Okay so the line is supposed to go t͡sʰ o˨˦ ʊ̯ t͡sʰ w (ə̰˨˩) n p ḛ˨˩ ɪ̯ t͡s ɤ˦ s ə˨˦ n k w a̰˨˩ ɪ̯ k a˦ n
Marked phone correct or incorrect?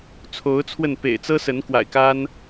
incorrect